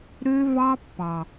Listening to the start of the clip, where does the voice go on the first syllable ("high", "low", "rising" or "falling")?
high